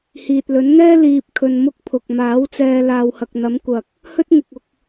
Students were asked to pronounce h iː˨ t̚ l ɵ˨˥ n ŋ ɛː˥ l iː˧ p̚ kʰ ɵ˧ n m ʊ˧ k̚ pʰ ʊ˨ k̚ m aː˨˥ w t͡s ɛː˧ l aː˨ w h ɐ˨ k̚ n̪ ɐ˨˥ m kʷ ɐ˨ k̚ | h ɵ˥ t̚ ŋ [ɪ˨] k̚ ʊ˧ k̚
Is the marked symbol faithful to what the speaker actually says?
yes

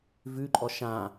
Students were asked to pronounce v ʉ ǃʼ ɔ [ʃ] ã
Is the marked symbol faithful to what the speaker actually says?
yes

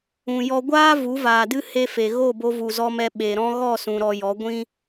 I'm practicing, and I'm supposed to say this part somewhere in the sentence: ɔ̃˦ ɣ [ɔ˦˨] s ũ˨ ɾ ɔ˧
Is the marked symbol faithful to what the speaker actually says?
yes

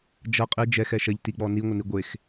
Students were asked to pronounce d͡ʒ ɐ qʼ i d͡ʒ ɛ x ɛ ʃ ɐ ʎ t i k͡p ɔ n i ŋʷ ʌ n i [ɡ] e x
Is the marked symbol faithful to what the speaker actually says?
no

